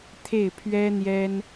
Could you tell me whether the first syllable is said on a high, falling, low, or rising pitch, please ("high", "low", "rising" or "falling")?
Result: falling